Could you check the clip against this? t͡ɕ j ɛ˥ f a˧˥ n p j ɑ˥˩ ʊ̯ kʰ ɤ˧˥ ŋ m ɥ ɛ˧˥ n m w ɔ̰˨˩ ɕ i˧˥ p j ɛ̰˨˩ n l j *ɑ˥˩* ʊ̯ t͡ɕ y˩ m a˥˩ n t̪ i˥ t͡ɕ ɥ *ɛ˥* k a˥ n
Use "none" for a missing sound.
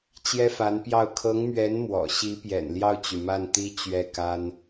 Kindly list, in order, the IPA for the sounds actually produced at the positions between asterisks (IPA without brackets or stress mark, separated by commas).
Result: ɑ˥˩, ɛ˥˩